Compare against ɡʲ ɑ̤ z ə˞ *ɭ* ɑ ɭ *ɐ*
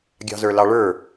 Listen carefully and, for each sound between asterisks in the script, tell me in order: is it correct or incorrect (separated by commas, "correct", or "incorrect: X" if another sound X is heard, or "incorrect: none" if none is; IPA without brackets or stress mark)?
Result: incorrect: l, incorrect: ə˞